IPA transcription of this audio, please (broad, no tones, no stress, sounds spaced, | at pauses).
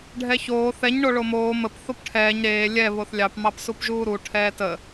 ɖʱ ɛ ç oː θ ɛ ɲ ɳ o ɭ o m oː m ə p θ o p ʈʰ ɛː ɲ ɾ eː lʲ ɛ β o θ lʲ ɑ p m ɑ p s u p ʒ uː ɾ u ʈʰ ɛː t ə